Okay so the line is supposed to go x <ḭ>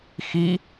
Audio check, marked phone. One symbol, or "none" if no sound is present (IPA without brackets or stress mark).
i